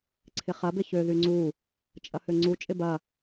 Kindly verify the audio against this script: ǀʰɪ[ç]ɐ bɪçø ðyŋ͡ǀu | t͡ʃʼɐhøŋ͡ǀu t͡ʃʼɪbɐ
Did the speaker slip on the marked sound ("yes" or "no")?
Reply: yes